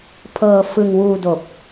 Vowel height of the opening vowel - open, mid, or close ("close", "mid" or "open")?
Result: mid